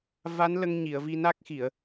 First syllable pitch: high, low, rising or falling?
rising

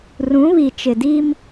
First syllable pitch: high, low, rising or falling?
rising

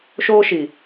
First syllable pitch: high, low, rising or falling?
high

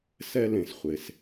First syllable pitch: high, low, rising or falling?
high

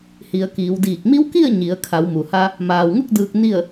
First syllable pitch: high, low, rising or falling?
low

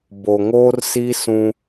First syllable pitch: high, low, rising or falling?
low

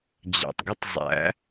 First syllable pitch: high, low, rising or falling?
low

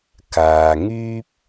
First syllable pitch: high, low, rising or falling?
low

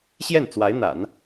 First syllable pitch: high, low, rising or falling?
falling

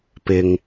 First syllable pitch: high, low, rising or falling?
low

